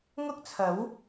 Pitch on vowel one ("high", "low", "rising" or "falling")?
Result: high